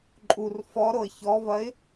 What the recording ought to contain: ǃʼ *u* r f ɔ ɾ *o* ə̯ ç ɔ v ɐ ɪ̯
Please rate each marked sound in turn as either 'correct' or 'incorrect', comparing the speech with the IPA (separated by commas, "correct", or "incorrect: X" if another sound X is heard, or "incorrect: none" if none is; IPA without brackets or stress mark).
correct, correct